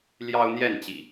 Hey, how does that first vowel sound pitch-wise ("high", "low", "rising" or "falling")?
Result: high